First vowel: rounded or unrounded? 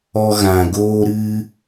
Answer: rounded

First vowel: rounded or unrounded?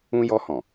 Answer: rounded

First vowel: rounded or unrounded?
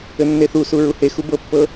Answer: unrounded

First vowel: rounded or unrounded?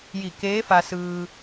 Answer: unrounded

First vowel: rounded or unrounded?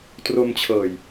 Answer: rounded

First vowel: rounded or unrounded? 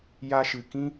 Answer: unrounded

